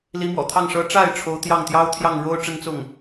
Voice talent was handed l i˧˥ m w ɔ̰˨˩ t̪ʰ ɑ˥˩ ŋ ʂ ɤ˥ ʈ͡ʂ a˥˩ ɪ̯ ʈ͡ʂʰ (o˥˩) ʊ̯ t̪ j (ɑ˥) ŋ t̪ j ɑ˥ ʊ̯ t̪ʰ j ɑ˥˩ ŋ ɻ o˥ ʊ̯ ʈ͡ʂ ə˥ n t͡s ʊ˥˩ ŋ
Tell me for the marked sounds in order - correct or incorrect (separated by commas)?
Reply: incorrect, incorrect